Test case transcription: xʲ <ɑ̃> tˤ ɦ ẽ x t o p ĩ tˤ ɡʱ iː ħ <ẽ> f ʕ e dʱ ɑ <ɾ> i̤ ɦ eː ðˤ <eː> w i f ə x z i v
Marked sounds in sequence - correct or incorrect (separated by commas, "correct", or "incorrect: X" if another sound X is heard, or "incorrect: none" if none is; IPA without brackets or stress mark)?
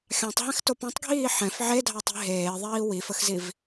correct, incorrect: ɛ̃, incorrect: tˤ, incorrect: iː